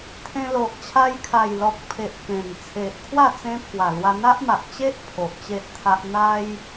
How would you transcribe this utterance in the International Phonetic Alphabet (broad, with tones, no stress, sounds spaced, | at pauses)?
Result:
t̪ʰ ẽ˧ l o˨ ʔ t͡ɕʰ a˧ j kʰ a˨˩ j l ɔ˨ k̚ pʰ e˨ ʔ k ẽ˨˩ n t͡sʰ e˨ ʔ kʰ w a˥˧ t͡s ẽ˧ pʰ w a˨˩ l w a˧ n̪ a˦ ʔ m a˨ ʔ t͡ɕ e˦ ʔ pʰ o˨ ʔ t͡ɕ e˦ ʔ t̪ʰ a˦ ʔ n̪ a˦ j